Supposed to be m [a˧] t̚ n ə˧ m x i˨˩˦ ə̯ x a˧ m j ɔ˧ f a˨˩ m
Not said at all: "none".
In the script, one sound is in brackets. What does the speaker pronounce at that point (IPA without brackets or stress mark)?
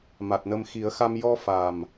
a˨˩